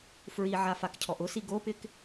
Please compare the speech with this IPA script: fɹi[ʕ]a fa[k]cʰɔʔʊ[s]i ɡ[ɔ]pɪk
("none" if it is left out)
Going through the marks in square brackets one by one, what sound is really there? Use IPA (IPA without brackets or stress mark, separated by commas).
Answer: ʕ, k, s, o